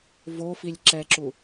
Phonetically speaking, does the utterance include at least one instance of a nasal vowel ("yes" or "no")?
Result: no